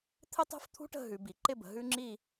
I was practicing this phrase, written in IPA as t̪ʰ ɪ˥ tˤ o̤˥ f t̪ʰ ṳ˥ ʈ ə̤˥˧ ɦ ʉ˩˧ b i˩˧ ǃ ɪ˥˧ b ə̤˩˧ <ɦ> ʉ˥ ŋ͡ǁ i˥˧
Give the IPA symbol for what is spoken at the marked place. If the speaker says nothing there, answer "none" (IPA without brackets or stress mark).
ɦ